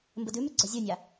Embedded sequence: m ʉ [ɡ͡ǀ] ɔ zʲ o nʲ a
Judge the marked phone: correct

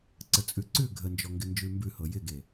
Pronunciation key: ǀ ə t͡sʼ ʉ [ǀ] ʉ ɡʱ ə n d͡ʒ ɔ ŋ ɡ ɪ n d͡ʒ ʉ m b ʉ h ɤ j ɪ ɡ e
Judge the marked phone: correct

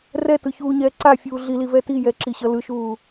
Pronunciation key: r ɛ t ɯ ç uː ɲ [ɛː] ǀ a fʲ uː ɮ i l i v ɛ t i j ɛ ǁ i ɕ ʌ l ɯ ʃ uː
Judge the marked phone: correct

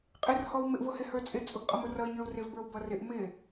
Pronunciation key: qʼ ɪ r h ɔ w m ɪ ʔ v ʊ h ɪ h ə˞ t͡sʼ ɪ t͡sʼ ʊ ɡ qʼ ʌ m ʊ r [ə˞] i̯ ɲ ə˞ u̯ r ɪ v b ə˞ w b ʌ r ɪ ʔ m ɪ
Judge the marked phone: incorrect: ʌ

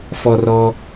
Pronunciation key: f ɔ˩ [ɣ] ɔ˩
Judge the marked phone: incorrect: r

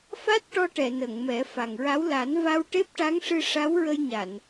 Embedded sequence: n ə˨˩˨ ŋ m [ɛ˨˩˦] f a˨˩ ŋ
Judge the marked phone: correct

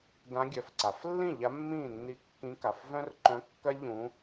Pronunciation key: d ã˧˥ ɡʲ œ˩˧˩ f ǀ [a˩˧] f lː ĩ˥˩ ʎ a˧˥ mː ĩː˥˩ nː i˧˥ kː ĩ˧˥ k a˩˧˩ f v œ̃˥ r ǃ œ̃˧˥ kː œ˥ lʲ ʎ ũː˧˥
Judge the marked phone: correct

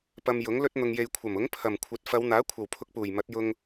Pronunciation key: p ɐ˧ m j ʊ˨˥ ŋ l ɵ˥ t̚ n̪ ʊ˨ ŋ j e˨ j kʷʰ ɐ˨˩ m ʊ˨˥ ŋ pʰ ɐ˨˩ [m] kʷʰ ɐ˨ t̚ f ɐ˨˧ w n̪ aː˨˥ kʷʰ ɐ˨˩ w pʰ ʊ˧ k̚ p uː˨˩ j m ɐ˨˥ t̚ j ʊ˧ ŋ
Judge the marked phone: correct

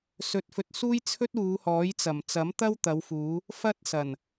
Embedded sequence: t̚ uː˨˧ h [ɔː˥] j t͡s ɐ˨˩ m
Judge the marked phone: incorrect: ɔː˨˥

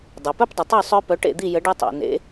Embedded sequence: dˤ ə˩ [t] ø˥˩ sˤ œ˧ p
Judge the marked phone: incorrect: tˤ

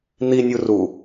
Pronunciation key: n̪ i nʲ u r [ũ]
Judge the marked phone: incorrect: u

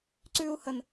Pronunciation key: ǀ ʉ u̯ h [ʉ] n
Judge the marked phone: incorrect: ə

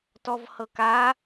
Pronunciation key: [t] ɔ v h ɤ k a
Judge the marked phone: correct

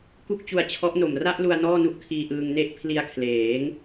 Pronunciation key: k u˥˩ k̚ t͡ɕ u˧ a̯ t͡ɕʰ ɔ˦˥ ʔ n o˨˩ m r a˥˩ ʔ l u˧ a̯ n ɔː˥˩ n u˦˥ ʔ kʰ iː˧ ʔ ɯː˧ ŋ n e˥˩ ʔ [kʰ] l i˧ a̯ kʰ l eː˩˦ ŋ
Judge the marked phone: incorrect: pʰ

